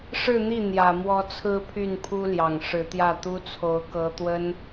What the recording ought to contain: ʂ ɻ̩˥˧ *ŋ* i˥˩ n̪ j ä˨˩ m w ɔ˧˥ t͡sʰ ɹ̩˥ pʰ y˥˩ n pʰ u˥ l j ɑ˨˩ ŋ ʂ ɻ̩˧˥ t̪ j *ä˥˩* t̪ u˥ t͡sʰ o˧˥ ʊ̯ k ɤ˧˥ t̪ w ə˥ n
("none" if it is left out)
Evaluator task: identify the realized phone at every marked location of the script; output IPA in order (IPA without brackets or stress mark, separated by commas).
n̪, ä˥˩